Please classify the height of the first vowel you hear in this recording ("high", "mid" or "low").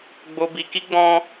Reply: mid